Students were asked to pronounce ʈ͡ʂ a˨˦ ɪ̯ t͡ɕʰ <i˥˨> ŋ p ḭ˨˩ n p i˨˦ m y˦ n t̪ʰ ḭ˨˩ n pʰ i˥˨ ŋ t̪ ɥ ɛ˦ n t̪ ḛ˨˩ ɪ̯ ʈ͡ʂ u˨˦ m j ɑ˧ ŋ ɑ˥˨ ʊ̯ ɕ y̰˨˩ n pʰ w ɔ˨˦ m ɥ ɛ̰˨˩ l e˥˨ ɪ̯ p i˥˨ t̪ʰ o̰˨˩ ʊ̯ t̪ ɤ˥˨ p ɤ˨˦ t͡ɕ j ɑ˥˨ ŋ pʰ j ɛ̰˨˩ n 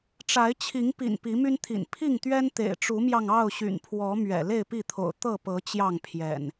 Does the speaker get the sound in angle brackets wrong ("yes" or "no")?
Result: yes